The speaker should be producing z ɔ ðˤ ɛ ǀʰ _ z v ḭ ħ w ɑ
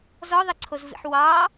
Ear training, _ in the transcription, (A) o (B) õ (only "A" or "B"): A